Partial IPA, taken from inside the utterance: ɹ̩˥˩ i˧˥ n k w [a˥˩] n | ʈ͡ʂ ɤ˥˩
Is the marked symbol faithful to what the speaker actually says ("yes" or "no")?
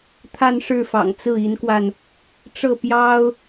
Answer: no